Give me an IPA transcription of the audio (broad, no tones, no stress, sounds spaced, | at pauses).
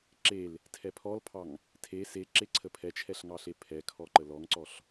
ǁ e l | tʰ ɛ pʰ ɔ l pʰ ɑ ŋ | tʰ e s e ǁ e ǀʰ ə pʰ ɛ t͡ʃʰ ɛ ɬ ŋ ɑ ɬ e pʰ ɛ kʰ ɔ ǃ ə l ɔ ŋ ǀ ɔ ɬ